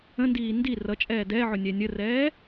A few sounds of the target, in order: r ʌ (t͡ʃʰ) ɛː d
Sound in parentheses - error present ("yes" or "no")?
yes